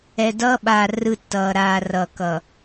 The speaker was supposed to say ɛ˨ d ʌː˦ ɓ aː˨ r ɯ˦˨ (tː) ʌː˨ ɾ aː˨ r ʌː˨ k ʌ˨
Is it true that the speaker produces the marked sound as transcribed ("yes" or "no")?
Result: yes